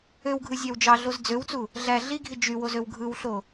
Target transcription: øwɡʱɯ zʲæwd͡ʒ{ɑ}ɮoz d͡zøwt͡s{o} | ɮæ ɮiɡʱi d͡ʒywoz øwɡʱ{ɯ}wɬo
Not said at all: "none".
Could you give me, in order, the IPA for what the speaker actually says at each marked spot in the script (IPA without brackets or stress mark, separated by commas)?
ɑ, u, ɯ